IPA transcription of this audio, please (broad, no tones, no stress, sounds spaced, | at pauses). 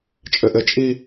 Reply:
t͡ʃʼ ɘ ʔ ɘ t͡ʃʼ i